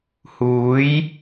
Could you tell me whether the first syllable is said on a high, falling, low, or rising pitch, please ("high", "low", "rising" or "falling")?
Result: rising